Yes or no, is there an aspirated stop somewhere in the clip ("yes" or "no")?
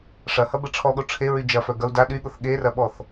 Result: yes